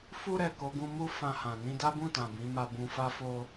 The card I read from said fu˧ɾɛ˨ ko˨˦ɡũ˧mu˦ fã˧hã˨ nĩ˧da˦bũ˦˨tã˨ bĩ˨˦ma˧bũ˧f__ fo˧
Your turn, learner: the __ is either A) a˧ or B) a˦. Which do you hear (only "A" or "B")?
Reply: B